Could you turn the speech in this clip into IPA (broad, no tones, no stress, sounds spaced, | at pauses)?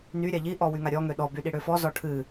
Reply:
n y ɾʲ a ʎ i ʔ ɔ w y ŋ a ɾʲ ɔ ŋ ø ɗ ɔ b y ɗ i ɽ ø f ɔ z ɔ ʈʰ ɨ